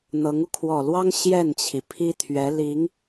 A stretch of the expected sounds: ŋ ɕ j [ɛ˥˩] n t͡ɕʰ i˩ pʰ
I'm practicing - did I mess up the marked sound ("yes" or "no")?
no